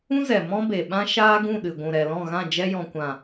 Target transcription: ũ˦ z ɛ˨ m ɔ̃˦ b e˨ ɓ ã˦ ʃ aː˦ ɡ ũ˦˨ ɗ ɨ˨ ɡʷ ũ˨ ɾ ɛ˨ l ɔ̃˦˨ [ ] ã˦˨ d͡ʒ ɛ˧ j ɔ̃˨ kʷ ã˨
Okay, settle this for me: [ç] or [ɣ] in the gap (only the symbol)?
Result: ɣ